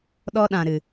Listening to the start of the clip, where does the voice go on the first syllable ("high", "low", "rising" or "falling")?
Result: high